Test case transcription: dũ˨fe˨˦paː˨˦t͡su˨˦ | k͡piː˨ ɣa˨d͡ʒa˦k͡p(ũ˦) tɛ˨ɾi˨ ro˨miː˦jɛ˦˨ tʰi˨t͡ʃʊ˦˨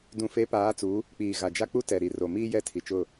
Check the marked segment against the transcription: incorrect: u˦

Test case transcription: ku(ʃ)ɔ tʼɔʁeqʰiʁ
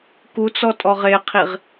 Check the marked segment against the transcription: incorrect: t͡s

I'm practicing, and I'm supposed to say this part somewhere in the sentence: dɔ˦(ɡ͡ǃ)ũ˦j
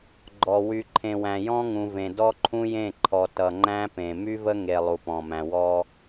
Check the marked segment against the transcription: incorrect: ǃʰ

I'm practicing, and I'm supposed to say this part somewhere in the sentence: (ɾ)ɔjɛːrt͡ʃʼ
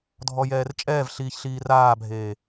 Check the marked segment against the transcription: incorrect: dʱ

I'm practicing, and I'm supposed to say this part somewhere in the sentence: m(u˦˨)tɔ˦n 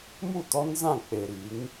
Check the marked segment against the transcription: correct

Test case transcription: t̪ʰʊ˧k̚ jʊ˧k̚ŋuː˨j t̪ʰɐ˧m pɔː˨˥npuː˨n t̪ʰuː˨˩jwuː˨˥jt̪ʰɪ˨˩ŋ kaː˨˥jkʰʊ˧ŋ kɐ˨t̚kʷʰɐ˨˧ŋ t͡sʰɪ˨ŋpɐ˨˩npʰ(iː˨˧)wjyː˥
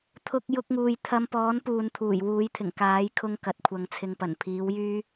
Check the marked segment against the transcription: incorrect: iː˨˥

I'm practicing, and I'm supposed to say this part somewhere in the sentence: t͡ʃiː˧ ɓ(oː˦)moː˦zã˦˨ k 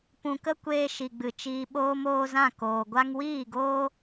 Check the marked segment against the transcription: correct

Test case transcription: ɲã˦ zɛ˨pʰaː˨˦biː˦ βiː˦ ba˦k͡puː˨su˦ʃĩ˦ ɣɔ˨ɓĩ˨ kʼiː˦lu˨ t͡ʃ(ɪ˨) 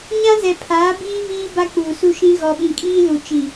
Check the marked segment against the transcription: incorrect: i˨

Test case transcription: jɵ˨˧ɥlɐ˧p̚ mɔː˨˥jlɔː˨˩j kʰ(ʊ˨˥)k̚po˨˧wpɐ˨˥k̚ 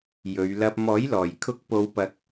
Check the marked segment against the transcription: correct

